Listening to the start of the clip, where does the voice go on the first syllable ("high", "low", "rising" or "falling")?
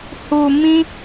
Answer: low